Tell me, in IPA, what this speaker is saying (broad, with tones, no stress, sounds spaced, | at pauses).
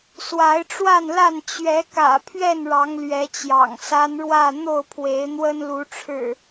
s w a˨˦ ɪ̯ ʈ͡ʂ w a˥˨ n l a˥˨ n t͡ɕ ɥ ɛ˨˦ k ä̰˨˩ pʰ ɥ ɛ˥˨ n ɻ ɑ˨˦ ŋ l ɥ ɛ˨˦ t͡ɕ j ɑ̰˨˩ ŋ s a˦ n ɻ w ä˥˨ n̪ o˥˨ ʊ̯ pʰ w e˨˦ ɪ̯ n̪ w ə˦ n l u˨˦ ʈ͡ʂʰ ɻ̩˨˩